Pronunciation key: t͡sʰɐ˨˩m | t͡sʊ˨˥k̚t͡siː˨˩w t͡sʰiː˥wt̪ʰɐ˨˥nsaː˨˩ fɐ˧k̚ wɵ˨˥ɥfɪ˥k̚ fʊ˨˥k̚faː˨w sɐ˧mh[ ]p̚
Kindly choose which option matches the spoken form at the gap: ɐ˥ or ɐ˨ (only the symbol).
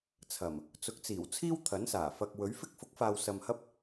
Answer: ɐ˥